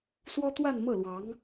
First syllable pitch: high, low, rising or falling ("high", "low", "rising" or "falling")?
high